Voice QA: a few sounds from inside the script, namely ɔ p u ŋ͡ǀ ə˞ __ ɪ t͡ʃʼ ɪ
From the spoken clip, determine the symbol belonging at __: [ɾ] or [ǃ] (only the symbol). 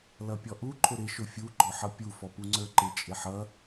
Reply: ǃ